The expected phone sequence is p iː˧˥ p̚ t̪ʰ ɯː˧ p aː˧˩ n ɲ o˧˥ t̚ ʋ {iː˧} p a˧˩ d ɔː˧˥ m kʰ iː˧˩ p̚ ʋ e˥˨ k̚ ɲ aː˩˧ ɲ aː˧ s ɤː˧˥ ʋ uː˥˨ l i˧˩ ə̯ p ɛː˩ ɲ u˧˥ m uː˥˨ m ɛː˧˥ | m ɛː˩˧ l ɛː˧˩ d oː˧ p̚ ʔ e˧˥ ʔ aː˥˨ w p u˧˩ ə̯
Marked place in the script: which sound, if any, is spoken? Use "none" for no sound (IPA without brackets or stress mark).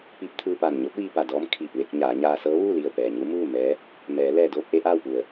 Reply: iː˧